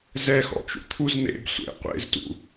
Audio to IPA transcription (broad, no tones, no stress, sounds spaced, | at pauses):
z ɛ x ɔ̰ t͡ʃ ṵ t̪ʰ u z n̪ ḛ b sʷ ḛ qʷ ḛ z t ṵ